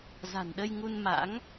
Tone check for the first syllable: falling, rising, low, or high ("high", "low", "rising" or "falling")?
low